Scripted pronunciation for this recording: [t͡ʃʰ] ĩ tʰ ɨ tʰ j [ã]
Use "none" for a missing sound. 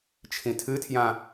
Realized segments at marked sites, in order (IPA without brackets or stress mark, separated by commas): t͡ʃʰ, ã